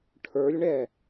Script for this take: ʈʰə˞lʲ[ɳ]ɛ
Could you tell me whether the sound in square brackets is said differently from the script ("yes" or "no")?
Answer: no